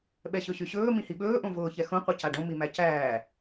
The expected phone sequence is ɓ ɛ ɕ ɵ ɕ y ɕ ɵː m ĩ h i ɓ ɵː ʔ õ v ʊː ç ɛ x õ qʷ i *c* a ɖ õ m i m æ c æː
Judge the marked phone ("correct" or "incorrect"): correct